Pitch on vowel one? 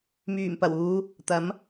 low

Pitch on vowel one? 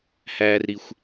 low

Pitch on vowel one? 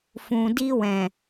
low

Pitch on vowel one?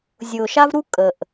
low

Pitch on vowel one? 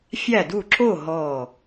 falling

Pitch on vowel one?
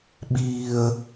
high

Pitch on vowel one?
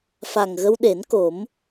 low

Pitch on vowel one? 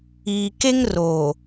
low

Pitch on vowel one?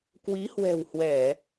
rising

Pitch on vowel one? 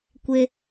high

